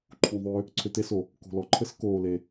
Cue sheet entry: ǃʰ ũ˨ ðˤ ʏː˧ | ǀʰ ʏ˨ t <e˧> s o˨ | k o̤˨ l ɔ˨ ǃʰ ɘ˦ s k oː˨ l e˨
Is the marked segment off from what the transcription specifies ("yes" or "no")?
no